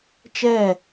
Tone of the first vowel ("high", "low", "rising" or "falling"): falling